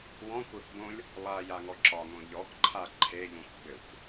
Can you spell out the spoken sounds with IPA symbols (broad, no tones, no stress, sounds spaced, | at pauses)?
w ɔ̃ kʷ ə˞ k b õ lʲ | lˠ a j a ŋ ɔ ǁ ɒ ŋ õ ʎ ɔ k ǃʰ a ǃʰ e ʎ ũ xʷ ɡ͡b ɘ xʷ